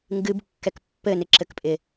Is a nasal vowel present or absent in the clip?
absent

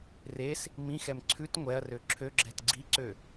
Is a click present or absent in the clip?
present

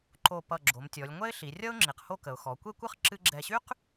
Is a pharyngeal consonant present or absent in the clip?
absent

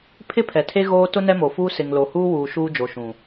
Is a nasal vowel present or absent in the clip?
present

